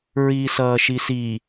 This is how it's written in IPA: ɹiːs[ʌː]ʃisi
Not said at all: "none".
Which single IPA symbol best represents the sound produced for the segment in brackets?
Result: ʌː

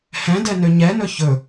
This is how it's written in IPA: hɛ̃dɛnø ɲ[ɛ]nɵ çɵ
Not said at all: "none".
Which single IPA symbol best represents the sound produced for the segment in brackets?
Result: ɛ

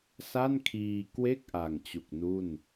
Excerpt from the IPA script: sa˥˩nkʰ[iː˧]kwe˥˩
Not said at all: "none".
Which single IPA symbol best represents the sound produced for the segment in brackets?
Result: iː˧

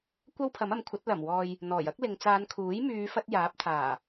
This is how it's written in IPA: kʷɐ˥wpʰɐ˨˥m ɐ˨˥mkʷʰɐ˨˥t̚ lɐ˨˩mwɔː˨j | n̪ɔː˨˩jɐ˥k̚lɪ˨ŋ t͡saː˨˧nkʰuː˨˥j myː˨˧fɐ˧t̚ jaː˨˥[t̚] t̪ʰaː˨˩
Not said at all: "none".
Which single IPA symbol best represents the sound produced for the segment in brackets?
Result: p̚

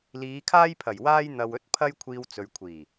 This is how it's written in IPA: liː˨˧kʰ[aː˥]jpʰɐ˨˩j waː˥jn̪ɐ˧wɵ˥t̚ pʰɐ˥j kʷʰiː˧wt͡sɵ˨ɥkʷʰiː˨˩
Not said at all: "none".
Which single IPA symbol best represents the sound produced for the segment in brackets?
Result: aː˥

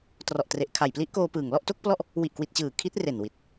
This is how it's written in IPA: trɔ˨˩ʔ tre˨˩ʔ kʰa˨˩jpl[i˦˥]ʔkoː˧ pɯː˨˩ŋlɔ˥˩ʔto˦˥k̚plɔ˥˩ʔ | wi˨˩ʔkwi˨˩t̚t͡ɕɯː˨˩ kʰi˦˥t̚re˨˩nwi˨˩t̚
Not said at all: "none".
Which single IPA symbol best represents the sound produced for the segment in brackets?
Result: i˦˥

